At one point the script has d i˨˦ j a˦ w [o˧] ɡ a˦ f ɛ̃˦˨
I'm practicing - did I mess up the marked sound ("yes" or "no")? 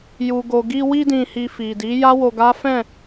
no